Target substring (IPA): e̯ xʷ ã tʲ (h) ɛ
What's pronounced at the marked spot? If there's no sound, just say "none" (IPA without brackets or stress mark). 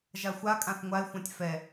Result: f